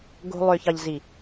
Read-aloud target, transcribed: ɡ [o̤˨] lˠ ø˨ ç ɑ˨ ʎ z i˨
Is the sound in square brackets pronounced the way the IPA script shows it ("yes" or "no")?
no